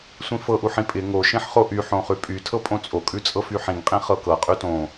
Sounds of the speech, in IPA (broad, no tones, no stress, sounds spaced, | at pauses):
sʷ ĩ f ɤ ʔ u ħ ĩ pʼ ɪ ŋ o ʃ ĩ ħ χ o ʔ y ħ õ χ ʉ pʼ y tʰ ɤ pʼ õ t͡sʼ o kʼ ʉ t͡sʼ ɤ f y ħ ĩ ŋ qʼ ĩ χ ɤ k ɤ qʼ y t õ